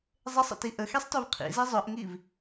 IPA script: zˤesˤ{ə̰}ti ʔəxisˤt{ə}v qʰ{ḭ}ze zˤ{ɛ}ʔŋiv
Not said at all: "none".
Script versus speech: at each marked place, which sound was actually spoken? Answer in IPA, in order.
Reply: ə̰, œ, ḭ, œ

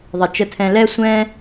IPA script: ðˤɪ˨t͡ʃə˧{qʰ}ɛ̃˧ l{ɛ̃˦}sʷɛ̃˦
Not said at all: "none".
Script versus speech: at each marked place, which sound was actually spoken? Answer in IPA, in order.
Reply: tʰ, ɛ˦

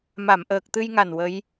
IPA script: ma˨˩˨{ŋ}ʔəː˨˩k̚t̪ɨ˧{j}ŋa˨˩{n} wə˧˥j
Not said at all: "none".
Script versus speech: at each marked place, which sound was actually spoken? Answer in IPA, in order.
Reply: m, j, n

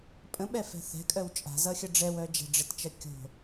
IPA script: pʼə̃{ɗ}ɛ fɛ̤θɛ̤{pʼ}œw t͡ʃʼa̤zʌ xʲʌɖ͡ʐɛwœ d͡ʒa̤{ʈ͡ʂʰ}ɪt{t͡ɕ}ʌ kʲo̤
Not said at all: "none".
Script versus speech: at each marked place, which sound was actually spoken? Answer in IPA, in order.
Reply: ɓ, kʼ, ɖ͡ʐ, t͡ʃ

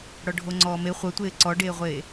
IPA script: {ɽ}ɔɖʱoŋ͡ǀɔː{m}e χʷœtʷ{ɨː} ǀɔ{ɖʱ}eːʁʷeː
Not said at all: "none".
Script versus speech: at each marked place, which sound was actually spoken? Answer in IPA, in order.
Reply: ɽ, m, eː, ɖ

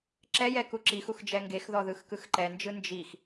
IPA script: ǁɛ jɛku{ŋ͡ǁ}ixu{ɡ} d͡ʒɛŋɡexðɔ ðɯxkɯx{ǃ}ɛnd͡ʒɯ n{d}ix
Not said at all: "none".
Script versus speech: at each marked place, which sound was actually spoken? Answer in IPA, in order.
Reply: ǁ, x, ǃ, d͡ʒ

